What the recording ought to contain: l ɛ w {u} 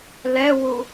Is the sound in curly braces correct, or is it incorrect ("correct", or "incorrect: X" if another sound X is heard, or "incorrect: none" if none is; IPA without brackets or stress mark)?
correct